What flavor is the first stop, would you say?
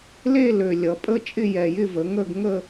ejective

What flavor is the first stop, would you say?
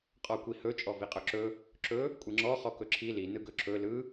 ejective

